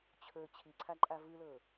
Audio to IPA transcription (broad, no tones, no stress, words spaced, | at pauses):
t͡ɕʰɵ t͡ɕʰiǀʰaǃʼa vɯlɤ